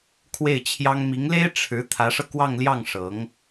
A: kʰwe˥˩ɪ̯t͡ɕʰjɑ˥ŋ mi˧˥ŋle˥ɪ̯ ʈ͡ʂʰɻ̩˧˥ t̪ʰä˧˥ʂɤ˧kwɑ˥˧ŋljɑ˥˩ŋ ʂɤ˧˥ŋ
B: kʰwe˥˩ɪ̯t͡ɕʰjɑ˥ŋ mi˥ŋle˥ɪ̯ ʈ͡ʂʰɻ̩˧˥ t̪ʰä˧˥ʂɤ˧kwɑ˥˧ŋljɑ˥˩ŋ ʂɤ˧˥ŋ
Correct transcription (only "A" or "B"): A